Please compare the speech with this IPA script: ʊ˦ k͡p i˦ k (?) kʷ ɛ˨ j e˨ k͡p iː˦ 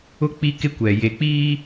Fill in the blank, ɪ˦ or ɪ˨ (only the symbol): ɪ˦